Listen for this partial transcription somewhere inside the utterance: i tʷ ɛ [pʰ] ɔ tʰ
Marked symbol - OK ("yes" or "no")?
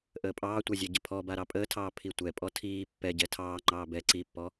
no